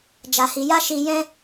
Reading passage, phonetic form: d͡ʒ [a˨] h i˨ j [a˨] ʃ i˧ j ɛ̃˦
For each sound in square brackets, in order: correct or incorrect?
correct, incorrect: a˧

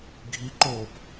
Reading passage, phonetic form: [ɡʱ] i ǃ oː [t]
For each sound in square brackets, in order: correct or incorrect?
correct, incorrect: p

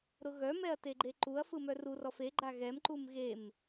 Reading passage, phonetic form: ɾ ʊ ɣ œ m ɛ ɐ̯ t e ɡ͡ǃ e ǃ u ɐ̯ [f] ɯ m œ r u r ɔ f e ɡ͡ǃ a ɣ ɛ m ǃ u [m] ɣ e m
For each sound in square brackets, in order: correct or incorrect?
correct, correct

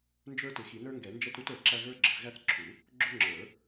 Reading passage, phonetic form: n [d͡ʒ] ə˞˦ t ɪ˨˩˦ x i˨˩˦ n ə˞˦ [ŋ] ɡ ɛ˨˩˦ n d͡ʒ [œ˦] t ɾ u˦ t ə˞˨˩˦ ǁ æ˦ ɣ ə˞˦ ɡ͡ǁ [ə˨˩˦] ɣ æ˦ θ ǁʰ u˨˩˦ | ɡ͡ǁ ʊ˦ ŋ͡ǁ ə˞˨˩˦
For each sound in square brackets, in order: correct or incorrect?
correct, correct, incorrect: ɛ˦, correct

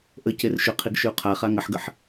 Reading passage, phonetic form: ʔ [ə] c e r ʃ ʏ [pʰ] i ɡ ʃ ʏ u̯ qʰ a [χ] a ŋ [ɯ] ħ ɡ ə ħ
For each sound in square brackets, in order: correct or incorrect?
correct, incorrect: qʰ, correct, incorrect: ə

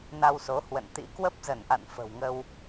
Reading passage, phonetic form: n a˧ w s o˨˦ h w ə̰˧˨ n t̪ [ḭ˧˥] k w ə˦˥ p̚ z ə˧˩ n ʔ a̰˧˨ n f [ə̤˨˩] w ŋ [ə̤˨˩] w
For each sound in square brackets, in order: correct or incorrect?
correct, correct, incorrect: ə˧

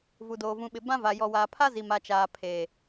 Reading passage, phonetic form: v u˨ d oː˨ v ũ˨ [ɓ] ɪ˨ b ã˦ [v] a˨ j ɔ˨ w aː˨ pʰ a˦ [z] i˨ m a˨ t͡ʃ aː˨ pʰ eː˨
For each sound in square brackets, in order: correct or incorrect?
correct, correct, correct

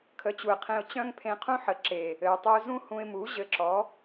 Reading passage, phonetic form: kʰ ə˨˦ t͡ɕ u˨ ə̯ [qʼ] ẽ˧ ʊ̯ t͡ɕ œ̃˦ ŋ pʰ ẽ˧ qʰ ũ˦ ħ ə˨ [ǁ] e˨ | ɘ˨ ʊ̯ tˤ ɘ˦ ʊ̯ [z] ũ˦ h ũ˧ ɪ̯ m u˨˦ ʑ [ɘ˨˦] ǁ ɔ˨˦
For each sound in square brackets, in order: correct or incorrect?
incorrect: qʰ, correct, correct, correct

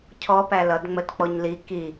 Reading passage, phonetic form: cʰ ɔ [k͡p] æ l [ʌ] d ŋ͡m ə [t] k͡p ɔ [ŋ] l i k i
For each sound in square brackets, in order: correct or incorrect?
incorrect: p, correct, correct, incorrect: ɲ

